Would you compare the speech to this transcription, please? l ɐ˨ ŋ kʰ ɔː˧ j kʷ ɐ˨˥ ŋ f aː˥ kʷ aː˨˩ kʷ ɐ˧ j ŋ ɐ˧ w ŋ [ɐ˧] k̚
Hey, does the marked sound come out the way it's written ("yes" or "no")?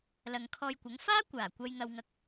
yes